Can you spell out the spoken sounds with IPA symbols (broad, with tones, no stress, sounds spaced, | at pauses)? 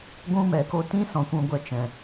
ɡʷ ũ˦ m ɛ˨ k o˦ t ĩ˦ s ɔ̃˨ kʷ ũ˧ ɡʷ ɛ˧ t͡ʃ ɛ̃˨